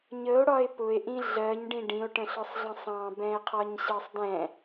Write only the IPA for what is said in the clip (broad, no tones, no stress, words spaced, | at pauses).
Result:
ɲəo̯ɽɒe̯ pʊe̯ʔĩ ɮɜɲɖĩ ɖĩo̯ʈə̃ɬɒsˤɮə̃ sˤɑ̃bɛ̃e̯qʰɒɲɕɜsˤ dɛ̃